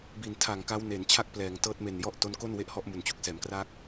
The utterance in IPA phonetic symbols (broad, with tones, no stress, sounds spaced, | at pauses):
b i˨˩ n tʰ a˨˩ ŋ k a˦˥ w n e˩˦ n t͡ɕʰ a˥˩ k̚ p l ɛː˩˦ ŋ t ɤː˦˥ t̚ m e˨˩ n j ɔ˥˩ ʔ t o˦˥ n k o˥˩ n w e˥˩ ʔ h ɔ˥˩ ʔ m u˩˦ n t͡ɕ u˨˩ k̚ s ɛː˩˦ m k r a˦˥ k̚